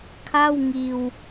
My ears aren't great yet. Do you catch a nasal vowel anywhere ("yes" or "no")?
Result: no